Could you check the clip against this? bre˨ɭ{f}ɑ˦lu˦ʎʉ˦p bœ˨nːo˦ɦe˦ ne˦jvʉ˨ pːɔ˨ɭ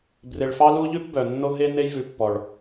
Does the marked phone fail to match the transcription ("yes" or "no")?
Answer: no